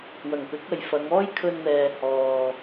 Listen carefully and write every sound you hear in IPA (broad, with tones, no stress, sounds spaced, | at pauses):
w ɐ˨˩ ŋ p ɪ˨˥ k̚ ɐ˨ j f ɐ˨˧ ŋ ɔː˥ j kʰ ɵ˧ n n̪ ɛː˨ h ɔː˨